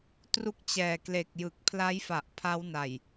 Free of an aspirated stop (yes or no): no